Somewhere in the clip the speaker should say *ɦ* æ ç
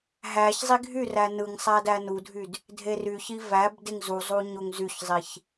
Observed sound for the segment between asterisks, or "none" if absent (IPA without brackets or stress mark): ɦ